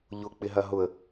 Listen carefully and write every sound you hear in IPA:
ʎ ʊ k͡p ɪ ɦ ɐ ɦ ʊ ə̯

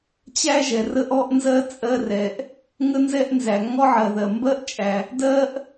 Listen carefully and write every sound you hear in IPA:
t͡ɕ æ˥ ʒ ɛ˩ r ə˥ ʔ ɔ˥ ʔ n z ɜ˥ t͡sʼ ɜ˥ r ɛ˩ ʔ | ŋ ə˥ n z ɛ˥ ʔ n z æ˩ ŋ ɔ˥ ʕ ɜ˩ ð ɜ˩ m b ɜ˥ ʔ t͡ʃʼ æ˩ | d ɜ˥ ʔ

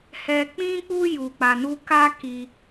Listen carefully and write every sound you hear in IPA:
h ɛ˧ k͡p ĩ˦ k͡p u˦ j u˧ k͡p a˧ n u˦ k a˦ k i˧

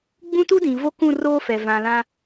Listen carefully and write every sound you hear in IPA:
ɡ͡b ũ˦ t u˦ d ĩ˨ v o˦ k ũ˦˨ r oː˦ f ɛ˨ v ã˨ l ã˦

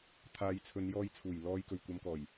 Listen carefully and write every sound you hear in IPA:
t̪ʰ aː˨˧ j t͡sʰ ɵ˨˧ n j ɔː˧ j t͡sʰ uː˨˩ j l ɔː˨˧ j k ɵ˨˩ ɥ kʷ ɐ˨˧ m k ɔː˨˩ j

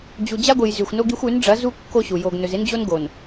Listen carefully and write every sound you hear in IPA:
d͡ʑ u˨ d͡ʑ a˦ ɡʷ ɨ˨ j z ʉ˨ xʷ n o˦ ɡ i˦ xʷ ʉ˨˦ n ɖ͡ʐ ɐ˨˦ z u˦ kː o˦ ɕ u˨ j o˨ ɡ n ɵ˨ z e˦ n d͡ʑ o˦ n ɡ o˨ n

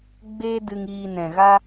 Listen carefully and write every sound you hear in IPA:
ɡ͡b eː˦ d ɨ˧ ŋ iː˧ n ɛ̃˨ ɣ a˦

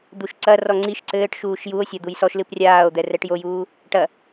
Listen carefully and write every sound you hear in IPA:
d̪ u ʃ ǀ ɐ r ɔ ŋ͡ǀ i ʃ ǀ ɘː ʈ ʃ uː ʃ j u o̯ sʲ ɐ d̪ u j s ɔ ʃ l ɨ p rʲ aː o̯ d̪ ɛ r ɛ ʈ j o j uː | ʈ ɐ

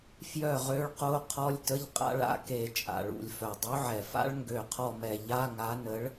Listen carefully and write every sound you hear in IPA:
f j œ˥˨ ʁ ø˦˥ ɭ q o˦˥ qʰ ɔ˧˥˧ lʲ t ə˧˥˧ ʎ qʼ a̰˦˥ ɭ a̰˦˥ k e˧˩ t͡ʃʼ a̰˩ ɭ ṵ˩ lʲ f œ˩ dˤ y˨˥ ʕ ɛ˩ f a̰˦˥ ɭ ŋ ɡ ø˧˩ qʰ ɔ˥˨ m ɛ˧˩ ʎ a˧˥˧ ŋ a˨˥ n ə˨˥ ɭ

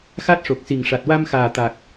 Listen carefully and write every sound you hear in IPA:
x a˦˥ t̚ ʂ o˨˩ k̚ s i˨˩ ŋ ʂ a˨˩ t̚ w a˧ m x aː˨˩ t̪ a˨˩ k̚

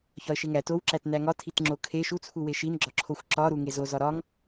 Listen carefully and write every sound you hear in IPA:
ç ɒ ə̯ ʃ e ŋ æ t o w ǁ æ t n æ ŋ ɒ tʰ i t ŋ͡ǁ o kʰ e ʃ u t͡sʰ u w e ʃ i n ɡ͡ǁ ɒ ǁʰ o xʷ ǁ ɒ ɾ u ŋ e z o z ɒ ɾ ɒ ŋ

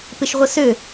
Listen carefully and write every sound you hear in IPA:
p ɪ ʃ ʁʷ ə s ø

